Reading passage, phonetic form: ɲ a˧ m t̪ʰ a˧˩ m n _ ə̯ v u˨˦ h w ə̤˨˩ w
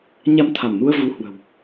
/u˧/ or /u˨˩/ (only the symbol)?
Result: u˧